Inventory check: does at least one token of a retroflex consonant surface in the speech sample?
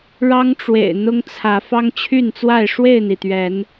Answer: yes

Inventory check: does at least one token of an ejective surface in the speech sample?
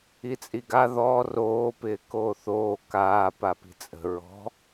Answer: yes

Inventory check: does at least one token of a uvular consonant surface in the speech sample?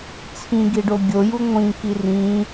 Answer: no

